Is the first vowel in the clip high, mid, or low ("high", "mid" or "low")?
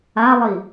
low